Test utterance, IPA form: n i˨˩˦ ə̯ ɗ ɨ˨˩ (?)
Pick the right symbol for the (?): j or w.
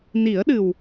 w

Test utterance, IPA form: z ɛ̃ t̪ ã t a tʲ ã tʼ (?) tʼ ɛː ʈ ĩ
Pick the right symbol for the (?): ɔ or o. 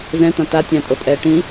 o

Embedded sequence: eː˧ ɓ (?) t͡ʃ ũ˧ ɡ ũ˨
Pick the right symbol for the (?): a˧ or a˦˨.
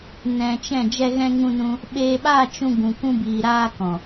a˦˨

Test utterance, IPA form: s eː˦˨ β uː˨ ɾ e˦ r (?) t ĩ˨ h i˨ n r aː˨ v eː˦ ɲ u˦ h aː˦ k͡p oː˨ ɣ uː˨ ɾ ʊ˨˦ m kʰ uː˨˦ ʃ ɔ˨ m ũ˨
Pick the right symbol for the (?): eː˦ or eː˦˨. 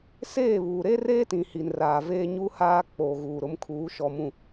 eː˦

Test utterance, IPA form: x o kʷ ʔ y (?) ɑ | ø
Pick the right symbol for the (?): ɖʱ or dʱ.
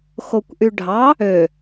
ɖʱ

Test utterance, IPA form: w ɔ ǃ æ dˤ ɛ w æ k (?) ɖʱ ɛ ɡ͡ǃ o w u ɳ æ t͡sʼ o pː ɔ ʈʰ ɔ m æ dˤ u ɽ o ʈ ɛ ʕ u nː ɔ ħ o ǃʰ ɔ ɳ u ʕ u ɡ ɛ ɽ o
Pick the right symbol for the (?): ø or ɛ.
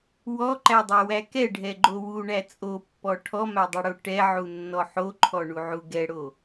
ɛ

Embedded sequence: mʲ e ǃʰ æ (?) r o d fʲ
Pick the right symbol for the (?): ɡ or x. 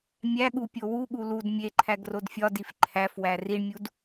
ɡ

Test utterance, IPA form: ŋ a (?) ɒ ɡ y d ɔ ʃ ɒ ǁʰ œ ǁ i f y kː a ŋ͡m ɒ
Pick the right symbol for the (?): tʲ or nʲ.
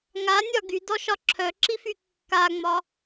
nʲ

